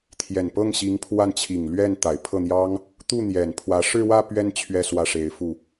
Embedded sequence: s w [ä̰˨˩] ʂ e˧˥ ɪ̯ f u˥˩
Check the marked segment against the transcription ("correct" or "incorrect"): incorrect